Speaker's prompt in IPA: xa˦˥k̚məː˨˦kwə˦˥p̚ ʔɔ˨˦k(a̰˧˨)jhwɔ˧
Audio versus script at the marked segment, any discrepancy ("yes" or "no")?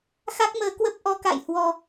no